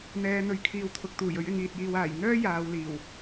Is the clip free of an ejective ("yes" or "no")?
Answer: yes